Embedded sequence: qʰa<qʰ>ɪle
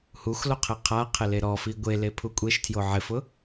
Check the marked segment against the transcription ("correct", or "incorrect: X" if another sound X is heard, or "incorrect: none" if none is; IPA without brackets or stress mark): correct